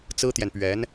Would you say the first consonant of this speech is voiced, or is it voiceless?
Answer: voiceless